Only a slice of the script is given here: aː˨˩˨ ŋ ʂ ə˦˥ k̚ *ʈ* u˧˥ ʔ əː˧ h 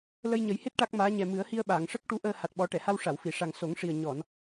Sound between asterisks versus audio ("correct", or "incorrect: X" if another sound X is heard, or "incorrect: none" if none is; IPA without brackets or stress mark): correct